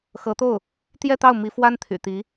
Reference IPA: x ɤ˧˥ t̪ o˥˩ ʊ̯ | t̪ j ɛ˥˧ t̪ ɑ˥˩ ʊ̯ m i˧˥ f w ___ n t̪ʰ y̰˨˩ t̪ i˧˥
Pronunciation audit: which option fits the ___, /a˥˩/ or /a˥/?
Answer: a˥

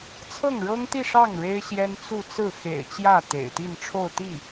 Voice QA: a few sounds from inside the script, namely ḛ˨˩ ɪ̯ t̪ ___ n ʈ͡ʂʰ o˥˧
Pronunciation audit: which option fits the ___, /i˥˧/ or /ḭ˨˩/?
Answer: i˥˧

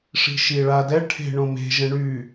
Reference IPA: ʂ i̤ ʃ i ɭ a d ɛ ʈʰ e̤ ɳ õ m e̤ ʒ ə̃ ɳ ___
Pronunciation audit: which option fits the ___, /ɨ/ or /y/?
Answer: y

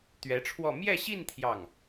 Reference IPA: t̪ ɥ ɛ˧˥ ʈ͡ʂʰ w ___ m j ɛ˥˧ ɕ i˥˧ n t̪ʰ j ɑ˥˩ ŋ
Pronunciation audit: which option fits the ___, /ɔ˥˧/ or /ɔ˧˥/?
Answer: ɔ˥˧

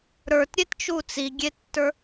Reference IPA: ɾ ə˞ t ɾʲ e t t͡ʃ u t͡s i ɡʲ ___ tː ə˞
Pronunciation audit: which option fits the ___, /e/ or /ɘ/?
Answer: e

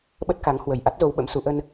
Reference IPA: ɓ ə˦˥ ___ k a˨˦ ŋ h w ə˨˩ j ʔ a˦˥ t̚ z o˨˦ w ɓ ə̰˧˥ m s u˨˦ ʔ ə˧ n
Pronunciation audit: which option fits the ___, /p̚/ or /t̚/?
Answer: t̚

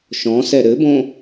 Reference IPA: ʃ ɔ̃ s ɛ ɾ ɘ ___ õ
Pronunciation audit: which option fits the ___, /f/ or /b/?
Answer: b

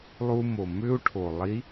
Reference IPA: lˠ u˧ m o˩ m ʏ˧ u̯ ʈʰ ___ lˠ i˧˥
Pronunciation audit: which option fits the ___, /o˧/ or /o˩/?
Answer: o˩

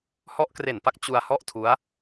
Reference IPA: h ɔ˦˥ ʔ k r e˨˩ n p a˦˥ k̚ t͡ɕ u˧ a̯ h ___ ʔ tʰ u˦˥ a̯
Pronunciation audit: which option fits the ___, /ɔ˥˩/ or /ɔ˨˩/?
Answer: ɔ˥˩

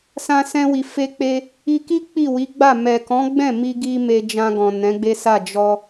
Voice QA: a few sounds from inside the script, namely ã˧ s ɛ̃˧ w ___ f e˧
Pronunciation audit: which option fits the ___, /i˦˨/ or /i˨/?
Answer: i˨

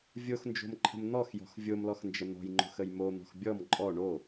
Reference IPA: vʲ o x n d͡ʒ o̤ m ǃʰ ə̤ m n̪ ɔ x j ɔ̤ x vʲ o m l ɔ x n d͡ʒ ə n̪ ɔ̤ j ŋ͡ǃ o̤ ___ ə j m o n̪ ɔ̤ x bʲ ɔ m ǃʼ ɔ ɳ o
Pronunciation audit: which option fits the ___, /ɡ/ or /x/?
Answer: x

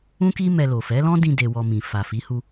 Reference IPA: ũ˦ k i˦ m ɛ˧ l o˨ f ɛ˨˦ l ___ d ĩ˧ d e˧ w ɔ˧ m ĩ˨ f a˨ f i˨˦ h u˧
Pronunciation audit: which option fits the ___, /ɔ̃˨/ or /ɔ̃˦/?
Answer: ɔ̃˦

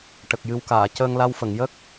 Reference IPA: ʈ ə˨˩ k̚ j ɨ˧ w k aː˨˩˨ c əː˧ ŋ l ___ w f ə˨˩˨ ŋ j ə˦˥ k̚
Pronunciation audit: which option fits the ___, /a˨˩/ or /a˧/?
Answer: a˧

